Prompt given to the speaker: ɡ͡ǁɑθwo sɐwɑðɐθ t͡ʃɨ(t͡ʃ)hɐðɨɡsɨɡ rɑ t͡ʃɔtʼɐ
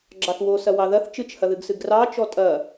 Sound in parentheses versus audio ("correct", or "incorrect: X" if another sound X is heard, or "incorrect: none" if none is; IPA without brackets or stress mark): correct